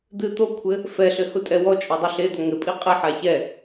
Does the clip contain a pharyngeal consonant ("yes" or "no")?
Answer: yes